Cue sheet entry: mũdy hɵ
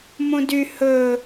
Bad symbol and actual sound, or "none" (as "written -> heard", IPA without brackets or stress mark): none